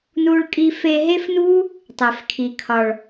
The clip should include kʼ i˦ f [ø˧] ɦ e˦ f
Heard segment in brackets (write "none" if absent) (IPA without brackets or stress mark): e˧